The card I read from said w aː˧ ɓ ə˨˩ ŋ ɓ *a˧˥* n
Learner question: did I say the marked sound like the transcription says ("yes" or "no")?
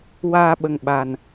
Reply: no